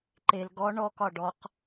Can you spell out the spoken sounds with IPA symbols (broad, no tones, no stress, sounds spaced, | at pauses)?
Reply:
ǃ e l ɡ ɔ ɳ ɔ k ɒ ɖ ɔ q